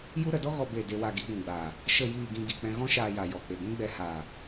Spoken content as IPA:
j u˦ ɾ ə˧ d ɔ˦ ɣ ɔ˧ b e˦˨ d e˦ w a˧ ɡ i˨˦ ɡʷ ũ˨ ɡ͡b aː˨ | ʃ ə˦˨ j iː˦˨ ɡ ĩ˧ ɡ i˨ k͡p ɛ̃˧ ɣ ɔ̃˦ ʃ aː˧ j a˨ j ɔ˨ k͡p e˨ ɡʷ ĩ˦ ɡ͡b ɛ˧ h aː˨

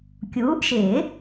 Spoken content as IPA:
kʲ uː˨˥ ʔ ʃ ɪː˨˩˦

